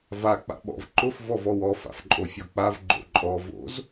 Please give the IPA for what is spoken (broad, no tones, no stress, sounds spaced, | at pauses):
v a k͡p a̰ ɓ ɔ̰ v ǃ ʊ f v ɔ v ɔ w ɔ f a̰ f ǃʼ o fʲ ɔ k͡p a v ɡ͡ǃ o̰ ǃʼ ɔ v o̰ z